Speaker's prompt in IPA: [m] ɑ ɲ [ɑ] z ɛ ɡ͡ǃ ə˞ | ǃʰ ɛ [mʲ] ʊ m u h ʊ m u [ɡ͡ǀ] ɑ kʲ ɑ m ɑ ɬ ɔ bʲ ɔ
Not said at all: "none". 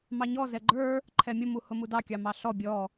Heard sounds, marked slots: m, ɔ, mʲ, d

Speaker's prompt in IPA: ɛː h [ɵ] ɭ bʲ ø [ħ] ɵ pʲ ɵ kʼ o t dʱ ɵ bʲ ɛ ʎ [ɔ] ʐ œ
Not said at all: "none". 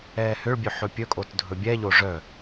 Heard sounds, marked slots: ø, ħ, o

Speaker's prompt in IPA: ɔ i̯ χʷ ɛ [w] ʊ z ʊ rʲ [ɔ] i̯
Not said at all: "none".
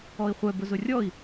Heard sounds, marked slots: b, ɔ

